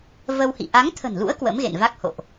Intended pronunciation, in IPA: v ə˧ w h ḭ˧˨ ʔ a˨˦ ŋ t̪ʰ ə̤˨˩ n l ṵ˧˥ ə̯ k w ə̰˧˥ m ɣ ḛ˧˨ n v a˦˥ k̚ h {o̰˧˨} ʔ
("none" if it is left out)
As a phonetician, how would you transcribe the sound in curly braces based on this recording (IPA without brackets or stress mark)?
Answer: o̰˧˨